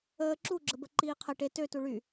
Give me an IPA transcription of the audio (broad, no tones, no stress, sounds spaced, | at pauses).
əː ǁ u ɡ͡ǁ ə b ə ǃ iː qʰ ə ʈ e t ø t u ɭ y